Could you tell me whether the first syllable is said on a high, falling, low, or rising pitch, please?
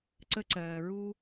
high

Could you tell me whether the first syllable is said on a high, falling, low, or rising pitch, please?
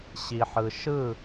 low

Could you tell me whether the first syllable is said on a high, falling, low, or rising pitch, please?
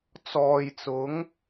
low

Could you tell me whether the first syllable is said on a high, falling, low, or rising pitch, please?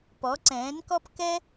rising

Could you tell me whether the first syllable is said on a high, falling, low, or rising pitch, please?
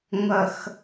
low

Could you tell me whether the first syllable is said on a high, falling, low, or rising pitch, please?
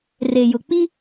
low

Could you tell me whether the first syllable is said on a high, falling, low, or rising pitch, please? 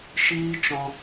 high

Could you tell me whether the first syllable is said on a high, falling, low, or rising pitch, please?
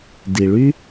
low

